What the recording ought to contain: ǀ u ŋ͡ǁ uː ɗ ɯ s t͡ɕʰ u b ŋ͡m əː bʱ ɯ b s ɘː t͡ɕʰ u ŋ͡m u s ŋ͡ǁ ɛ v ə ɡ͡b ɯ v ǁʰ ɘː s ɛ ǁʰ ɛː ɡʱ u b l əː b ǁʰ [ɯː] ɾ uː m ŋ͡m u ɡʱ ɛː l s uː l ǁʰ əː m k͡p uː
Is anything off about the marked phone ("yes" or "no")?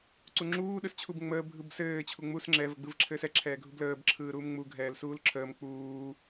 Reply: no